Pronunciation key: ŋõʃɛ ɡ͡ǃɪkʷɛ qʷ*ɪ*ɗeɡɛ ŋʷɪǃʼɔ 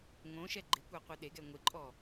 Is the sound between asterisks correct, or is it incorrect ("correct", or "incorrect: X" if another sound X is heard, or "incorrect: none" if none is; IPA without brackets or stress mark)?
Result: incorrect: ɨ